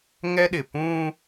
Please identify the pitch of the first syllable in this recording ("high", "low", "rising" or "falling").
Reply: high